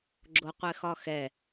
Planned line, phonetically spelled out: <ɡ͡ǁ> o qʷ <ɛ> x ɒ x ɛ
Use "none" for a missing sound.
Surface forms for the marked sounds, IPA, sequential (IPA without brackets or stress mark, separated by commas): ɡ͡ǁ, ɛ